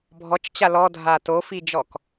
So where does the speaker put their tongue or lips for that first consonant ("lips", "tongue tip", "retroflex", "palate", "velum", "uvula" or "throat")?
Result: lips